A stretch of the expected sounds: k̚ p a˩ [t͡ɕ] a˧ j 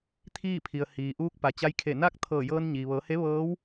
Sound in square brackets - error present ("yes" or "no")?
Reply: no